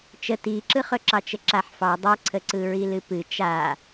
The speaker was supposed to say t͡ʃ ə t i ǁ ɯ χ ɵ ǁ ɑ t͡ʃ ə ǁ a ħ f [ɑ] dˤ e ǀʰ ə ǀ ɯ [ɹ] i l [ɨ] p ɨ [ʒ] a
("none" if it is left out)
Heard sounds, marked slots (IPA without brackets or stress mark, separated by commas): ɑ, ɹ, ɨ, t͡ʃ